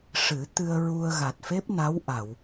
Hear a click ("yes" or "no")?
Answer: no